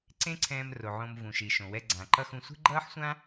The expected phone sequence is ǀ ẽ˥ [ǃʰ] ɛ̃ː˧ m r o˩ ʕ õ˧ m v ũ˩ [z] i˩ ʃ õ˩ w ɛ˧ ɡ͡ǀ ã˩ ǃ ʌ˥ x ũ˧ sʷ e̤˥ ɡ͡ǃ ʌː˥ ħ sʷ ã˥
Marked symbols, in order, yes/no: no, no

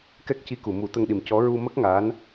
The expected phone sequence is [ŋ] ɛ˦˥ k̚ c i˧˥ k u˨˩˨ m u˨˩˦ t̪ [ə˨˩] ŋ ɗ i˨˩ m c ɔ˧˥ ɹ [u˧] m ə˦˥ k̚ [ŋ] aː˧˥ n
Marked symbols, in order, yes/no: no, no, yes, yes

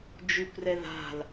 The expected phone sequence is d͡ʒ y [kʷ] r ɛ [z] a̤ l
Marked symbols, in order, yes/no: yes, no

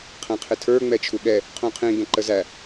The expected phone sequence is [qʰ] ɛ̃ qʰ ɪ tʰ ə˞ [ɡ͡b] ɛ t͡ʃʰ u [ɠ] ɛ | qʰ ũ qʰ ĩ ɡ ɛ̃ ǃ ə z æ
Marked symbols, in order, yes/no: yes, no, yes

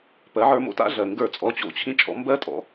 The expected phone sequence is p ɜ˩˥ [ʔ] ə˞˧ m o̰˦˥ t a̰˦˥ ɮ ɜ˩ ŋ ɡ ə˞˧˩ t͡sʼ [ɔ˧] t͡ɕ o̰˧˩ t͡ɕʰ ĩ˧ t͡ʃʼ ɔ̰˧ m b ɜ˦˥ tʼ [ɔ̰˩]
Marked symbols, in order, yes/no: no, no, no

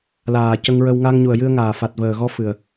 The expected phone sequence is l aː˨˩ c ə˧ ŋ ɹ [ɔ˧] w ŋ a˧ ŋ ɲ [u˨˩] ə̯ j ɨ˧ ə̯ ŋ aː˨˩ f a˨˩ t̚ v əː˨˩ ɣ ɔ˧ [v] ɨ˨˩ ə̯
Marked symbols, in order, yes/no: no, yes, no

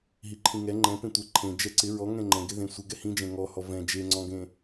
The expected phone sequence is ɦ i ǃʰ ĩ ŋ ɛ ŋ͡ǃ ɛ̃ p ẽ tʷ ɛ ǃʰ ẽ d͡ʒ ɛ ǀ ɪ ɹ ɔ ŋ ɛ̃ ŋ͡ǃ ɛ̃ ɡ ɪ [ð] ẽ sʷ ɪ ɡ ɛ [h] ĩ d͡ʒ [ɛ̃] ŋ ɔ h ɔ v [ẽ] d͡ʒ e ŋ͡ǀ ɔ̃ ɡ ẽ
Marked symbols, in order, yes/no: yes, yes, yes, no

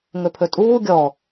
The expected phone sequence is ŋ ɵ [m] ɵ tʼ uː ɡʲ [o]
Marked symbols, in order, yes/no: no, no

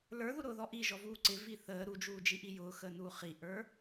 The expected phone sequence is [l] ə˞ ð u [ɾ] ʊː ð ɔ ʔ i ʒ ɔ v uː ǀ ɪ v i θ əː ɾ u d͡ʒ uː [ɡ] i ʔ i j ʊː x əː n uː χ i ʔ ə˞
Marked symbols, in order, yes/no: yes, yes, no

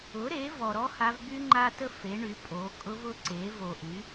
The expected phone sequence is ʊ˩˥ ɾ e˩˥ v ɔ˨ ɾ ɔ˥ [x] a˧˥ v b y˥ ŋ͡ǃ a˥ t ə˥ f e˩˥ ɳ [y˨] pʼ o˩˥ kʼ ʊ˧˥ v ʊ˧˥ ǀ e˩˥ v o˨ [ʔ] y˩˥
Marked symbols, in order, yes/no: no, no, yes

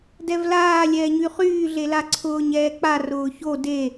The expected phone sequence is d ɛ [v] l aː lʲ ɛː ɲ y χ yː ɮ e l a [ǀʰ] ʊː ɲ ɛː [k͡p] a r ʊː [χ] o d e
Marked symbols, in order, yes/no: yes, yes, yes, no

